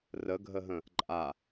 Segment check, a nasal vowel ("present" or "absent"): present